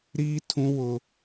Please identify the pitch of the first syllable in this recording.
high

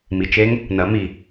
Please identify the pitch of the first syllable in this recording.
low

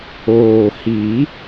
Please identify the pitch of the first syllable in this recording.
low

